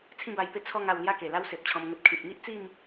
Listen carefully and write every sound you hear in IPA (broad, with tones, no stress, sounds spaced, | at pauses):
t͡sʰ ĩ˥˧ b a˧ j p e˥˧ t͡sʰ ɔ˥˧ ŋ a˧ w l j a˦ k e˨˩ l a˦ w s e˨ p̚ t͡ɕʰ ɔ̃˧ m ŋ ə˦ t̚ kʰ ĩ˨ t̚ ŋ i˦ ʔ t͡s i˥˧ m